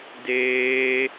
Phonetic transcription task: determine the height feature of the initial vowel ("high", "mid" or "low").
mid